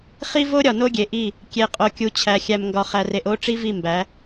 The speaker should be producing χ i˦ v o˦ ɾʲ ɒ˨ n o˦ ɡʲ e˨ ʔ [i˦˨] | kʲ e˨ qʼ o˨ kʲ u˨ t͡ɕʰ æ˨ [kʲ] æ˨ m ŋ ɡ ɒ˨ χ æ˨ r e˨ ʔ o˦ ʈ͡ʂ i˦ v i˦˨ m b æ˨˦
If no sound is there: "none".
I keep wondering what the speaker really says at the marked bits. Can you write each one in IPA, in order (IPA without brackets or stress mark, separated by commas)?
i˦˨, xʲ